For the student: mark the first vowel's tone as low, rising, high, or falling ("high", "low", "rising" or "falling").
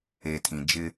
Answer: low